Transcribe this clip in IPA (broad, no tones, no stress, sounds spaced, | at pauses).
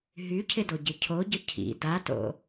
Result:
ɦ y cʰ ɪ d o ɟ ɪ cʰ o ɟ ə cʰ ḭ d a t o̰